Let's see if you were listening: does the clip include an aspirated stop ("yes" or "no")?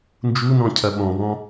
yes